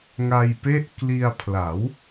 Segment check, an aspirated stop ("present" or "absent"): present